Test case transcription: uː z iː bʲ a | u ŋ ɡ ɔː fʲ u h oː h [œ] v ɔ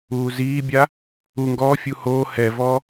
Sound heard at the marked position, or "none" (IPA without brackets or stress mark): ɛ